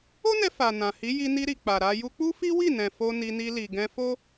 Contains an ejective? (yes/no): no